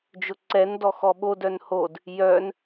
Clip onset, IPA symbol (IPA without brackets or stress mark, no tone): d͡ʒ